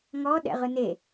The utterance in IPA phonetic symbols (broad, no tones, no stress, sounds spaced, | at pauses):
ŋ ɔ ɗ ɛ̰ ʁ ɯ n e